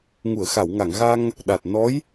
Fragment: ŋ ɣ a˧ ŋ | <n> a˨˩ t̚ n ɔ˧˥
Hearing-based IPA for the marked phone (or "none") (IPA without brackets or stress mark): ɗ